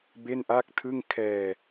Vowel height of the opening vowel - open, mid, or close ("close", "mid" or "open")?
mid